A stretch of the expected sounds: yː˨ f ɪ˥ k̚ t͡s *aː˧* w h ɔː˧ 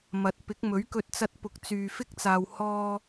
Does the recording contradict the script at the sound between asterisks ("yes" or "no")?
yes